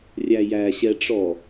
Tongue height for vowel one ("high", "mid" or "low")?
low